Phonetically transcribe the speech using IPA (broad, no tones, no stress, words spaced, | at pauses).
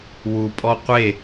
wupʼɔ qʷe